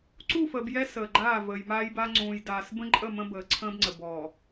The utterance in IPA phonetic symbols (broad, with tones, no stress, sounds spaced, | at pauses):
ǀ u˦˨ f əː˨ b j ɛ˦ s əː˨ ɡ͡ǃ aː˦˨ v əː˨ j m aː˦ j b a˦ ŋ͡ǀ ũː˨ j d aː˨ s b ə̃˦ ǃʼ ə˦˨ m ə̃˦ b əː˨ ǀʰ ə̃ː˦ b ŋ͡ǀ ə˨ b ɔ˨